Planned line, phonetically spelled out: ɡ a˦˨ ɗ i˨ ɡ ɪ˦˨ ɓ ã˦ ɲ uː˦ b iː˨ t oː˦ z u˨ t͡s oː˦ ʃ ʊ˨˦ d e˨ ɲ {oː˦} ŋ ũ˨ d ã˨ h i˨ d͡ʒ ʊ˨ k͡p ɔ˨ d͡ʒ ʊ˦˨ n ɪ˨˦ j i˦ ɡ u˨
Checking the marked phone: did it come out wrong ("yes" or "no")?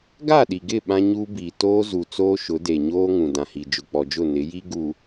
no